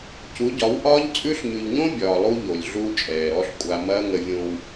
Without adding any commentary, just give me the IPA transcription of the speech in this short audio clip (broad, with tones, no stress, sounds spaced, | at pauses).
c u˨˦ ɟ ɒ˨˦ w ʔ ɒː˦ ʎ t͡sʼ ʉ˦ ɬ ɲ ʉ˨ ʎ ɲ õ˦ bʲ ɒː˨ lˠ u˦ ʎ o˨ lʲ ɮ uː˦ t͡ʃʼ ɛː˨ ɾ ɔ˦ ɬ kʷʼ a˨ m ɐː˦ ŋ ə˨ vʲ õ˨ w